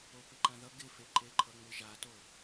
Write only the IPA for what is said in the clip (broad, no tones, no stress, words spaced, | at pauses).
opɪǃãðʌ ɡɪfeǃeǃʰʌ ŋ͡mɪʒato